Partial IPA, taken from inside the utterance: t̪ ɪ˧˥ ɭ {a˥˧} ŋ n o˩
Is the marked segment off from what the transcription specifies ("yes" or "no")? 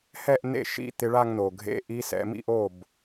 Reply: no